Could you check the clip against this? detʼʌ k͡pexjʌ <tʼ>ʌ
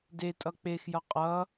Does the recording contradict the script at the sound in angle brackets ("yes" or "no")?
yes